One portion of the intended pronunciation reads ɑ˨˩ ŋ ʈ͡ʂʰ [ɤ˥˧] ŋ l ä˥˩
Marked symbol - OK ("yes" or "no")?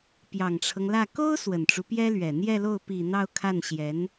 no